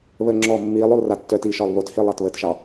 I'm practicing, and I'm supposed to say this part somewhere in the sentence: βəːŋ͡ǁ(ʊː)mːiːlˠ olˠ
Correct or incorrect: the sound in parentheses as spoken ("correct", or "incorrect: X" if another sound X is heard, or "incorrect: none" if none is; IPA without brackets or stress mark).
incorrect: ɔː